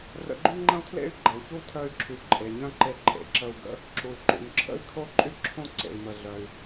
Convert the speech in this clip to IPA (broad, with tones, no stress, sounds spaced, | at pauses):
r ə̰˧ ɡ͡ǃ y˥ ŋ͡ǃ ə̃˥ u̯ tʰ l ḛ˥ y̯ ɡ͡ǃ ə˩ u̯ ç u˥ tʰ œ˧ y̯ ǁʰ y˩ ǃʼ e˩ ɲ œ̃˥ ǃ e˧ ǃʼ ḛ˩ ǁ ə˧ u̯ ɡ ə̰˥ | ǁ u˩ y̯ ǃ ṵ˩ n ǁʰ ə̰˥ i̯ kʰ o˥ ǃʼ y˥ ǁʰ õ˥ ǀ ḛ˩ i̯ m ə˩ ɮ œ˩ y̯